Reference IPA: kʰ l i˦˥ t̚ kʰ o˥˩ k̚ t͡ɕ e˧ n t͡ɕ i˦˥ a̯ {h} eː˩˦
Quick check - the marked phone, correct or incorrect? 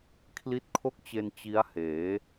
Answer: correct